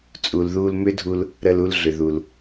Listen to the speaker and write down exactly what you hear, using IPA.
t͡sʼ u˨ l ð u˧ l m ʏ˦ dʱ u˧ l | ɾ ə˧ l u˧ l ɮ ʏ˨ ð u˨ l

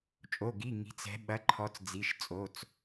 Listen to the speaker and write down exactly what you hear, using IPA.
t͡ʃʼ o˩˧˩ ɡ i˩˧˩ ŋ i̤˩˧ t͡s ɛ̤˩˧ ɓ ɐ˩˥ ǃʰ ɔ˩˧ t͡s d͡z i˩˧˩ ʃ t͡sʼ o˩˧˩ t͡s

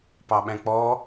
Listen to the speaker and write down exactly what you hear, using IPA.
p ɑ ɓ æ̃ k͡p ɔ

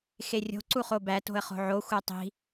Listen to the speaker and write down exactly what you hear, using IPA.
x e rʲ o̤ ǀ u χ o b æ t o̤ ə̯ χ o̤ ʕ o xʷ æ tˤ i̤

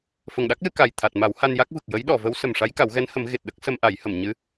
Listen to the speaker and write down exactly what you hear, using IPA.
f ə˨˩ ŋ ɗ a˦˥ k̚ l ɨ˧ k a˨˩ j t̪ʰ a˨˩ t̚ m a˨˩˦ w h a˧ n j a˦˥ k̚ v ɨ˨˩ k̚ j ə˧˥ j ɗ ɔ˨˩˨ v ə˧˥ w s ə˨˩ m ʂ a˧˥ j k a˨˩˦ w ɣ ɛ˧˥ n h ə˨˩˦ m ɣ e˨˩ t̚ ɗ ə˦˥ k̚ s ə˧ m ʔ a˨˩˦ j h ə˨˩˨ m ɲ ɨ˧˥

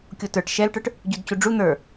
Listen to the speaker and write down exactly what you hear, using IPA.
kʲ o t ə˞ ʈ ʃ ɛ l ʈ ə˞ ʈ | ɟ u d c u ɖ͡ʐ u n̪ ə˞

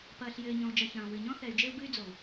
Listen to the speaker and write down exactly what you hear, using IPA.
p ɐː˨ ɬ j ɘː˨ ɲ ɔ̃˨ u̯ d͡ʒ ɐ˨ ç ɐ̃ː˨ w ɨ˨ ɲ ɔ̃˦ θ ɛ˨ y̯ d͡ʒ e˦ u̯ b ɨ˦ y̯ d͡z o˨ u̯

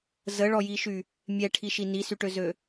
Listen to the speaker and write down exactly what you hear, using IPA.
z ə ɭ ɔ j i ʃ y | mʲ ɛ ʈʰ i ʃ i n i s y ʈ ø z ø

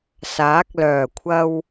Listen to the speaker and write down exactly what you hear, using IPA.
s aː˨˥ k̚ l œː˨˩ kʷʰ ɐ˧ w

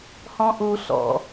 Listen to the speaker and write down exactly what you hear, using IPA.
h ɔ̃ ʔ u ɬ ɔ̰

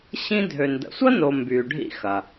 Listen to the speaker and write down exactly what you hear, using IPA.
ɕ ĩ˥ dʱ ø˨ n d ə̰˨ sʷ ɐ˥ n o˨ m b yː˨ ɖʱ ḭ˥ x ɐ˩

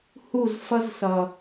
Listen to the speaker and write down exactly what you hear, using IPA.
h u˦˨ z f ʌ˦ z s ʌ˨

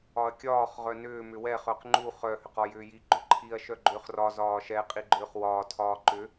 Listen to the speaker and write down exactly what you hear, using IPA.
ɒ ɐ̯ kʲ ɒː χ ʁ œ n ʏː m ʏ w ɛ χ œ q ŋ͡ǃ u χ œ h ʏ q ɒ j ʏː j i ɡ͡ǃ ʏ ǃʰ i ɐ̯ ʃ œ ɡ͡ǃ ʏː χ r ɒ z ɒː ʃ ɛ qʼ i ɡ͡ǃ ʏː χ w ɒː tʰ ɒː ǃ ʏ

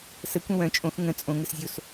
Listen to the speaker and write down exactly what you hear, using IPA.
s ə kʷ ə̃ w œ̃ t͡ʃʼ õ x ŋ ə̃ t͡sʼ õ ŋ ə s zʲ o s

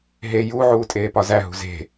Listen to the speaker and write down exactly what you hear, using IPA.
ɦ e j u ʕ uː tʼ eː p ɒ z æ ɦ ṳ z e̤

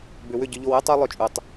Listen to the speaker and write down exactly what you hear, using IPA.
b ʏ˨ w ʏ˦˨ ɟ ʏ˦ ʎ o˦ w ɨ˦ tˤ u˦ lˠ ʏ˦ t͡ʃʼ u˨ tˤ

